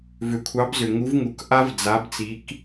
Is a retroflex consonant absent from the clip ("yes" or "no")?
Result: yes